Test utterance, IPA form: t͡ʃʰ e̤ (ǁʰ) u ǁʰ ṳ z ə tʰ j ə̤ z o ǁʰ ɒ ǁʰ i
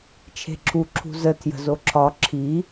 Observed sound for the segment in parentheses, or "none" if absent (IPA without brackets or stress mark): ǁʰ